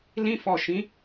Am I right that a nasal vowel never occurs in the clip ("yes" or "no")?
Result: no